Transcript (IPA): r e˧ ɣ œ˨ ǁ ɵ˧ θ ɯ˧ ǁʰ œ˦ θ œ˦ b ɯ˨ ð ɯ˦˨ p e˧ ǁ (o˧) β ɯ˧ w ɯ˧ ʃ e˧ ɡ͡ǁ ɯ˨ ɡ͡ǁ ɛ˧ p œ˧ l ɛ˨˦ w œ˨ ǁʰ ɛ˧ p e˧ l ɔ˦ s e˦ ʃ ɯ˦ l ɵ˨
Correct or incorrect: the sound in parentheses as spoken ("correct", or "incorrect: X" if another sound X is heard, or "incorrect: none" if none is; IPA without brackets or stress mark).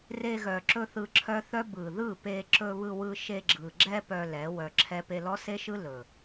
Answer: incorrect: ɵ˧